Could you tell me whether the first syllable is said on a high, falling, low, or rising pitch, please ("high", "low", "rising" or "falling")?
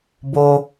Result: high